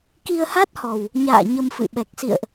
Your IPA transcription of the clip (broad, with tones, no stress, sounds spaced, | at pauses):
k i˧ ə̯ h a˦˥ t̚ h ɔ˨˩ w | ɲ a̰ː˧˨ ɲ ə˧ m f ɨ̰˧˨ ɓ ɛ˨˩ k̚ s ḭ˧˨ ə̯ ʔ